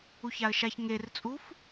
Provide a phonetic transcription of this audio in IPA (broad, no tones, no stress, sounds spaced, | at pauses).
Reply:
u ç a ə̯ ʃ a ç ŋ e r t͡sʼ u f